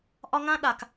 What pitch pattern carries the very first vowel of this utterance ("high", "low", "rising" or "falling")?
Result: high